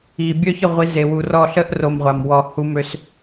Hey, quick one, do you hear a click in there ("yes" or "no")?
no